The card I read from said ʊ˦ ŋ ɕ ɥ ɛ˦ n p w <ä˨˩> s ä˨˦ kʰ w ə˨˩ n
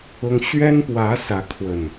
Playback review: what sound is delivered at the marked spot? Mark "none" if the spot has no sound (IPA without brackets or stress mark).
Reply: ä˨˦